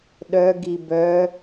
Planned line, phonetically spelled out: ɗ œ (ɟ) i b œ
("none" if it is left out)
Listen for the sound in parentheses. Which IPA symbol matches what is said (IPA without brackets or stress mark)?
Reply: ɡ